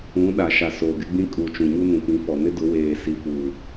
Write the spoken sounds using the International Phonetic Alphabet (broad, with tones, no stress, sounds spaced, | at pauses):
ũ˨˦ ɗ a˨ ʃ a˨ s oː˨ ɡ ɪ˦ ɡ͡b ĩ˦ kʼ u˨ t͡ʃ ũ˨ ɲ u˦ n ũ˨ p ĩ˨˦ f ɔ˨ n ɪ˦ d ʊ˨˦ w eː˨ s i˨ f uː˨